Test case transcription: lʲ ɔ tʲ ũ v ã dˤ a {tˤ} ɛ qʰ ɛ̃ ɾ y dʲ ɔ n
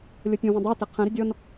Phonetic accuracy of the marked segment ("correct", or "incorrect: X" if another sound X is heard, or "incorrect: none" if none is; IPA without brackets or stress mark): incorrect: t